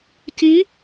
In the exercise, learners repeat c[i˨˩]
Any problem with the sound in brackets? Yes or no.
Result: yes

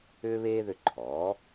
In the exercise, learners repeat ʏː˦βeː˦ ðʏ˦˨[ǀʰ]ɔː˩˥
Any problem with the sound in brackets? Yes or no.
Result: yes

